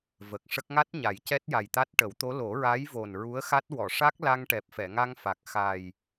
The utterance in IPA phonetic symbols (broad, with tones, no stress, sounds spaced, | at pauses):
v ə˨˩ k̚ ʂ ə˦˥ k̚ ŋ a˦˥ t̚ ɲ a˨˩˦ j c ɛ˦˥ t̚ j a˨˩ j t̪ a˦˥ t̚ ʈ ə˨˩˦ w t̪ o˧˥ l o˨˩˦ ɹ a˧˥ j v o˨˩ n ɹ u˧˥ ə̯ x a˦˥ t̚ w ɔ˨˩˨ ʂ a˦˥ k̚ l a˧ ŋ ʈ ɛ˨˩ p̚ f ɛ˨˩˨ ŋ a˧ ŋ f a˨˩ k̚ x a˨˩ j